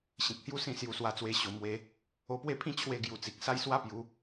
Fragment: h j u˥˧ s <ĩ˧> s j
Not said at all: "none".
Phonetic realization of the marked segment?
ĩ˥˧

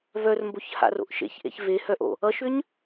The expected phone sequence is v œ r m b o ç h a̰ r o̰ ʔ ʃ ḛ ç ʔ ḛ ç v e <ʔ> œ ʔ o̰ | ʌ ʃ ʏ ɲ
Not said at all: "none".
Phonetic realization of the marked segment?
h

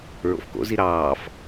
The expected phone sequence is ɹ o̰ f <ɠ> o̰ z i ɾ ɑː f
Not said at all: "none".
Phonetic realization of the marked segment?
k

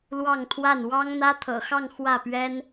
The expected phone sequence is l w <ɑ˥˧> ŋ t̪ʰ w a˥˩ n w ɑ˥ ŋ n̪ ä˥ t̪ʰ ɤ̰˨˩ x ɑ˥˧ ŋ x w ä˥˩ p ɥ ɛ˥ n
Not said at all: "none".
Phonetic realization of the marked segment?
ɑ˥˧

